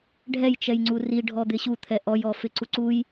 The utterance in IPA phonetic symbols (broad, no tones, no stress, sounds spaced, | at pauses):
ɖʱ ɛ j t͡ʃ ɛ j ŋ͡ǀ u r i ɖʱ ɔ d̪ ɪ ɕ u t̪ʰ ɛ ʔ ɔ j ɔ f ɪ ǀ u ǀ u j